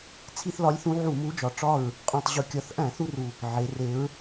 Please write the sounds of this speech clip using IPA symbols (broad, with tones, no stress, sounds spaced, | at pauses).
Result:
t͡sʰ i˦ θ l ɒ˨˥ lʲ θ ũ˨˥ ʕ u˧˩˧ m u˨˥ d͡ʒ ɒ˨˩ ʈ͡ʂ ɒ˥˨ ɹ | qʼ ũ˨˩ tˤ ʑ u˨˩ kʲ ɒ˨˩ θ ʔ æ̃˧˩˧ θ u˦ r u˨˩ | ʕ e˩˧ r e˨˥ ɹ